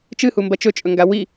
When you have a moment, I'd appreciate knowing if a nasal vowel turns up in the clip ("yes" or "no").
no